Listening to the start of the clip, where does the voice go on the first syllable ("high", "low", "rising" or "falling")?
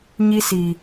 high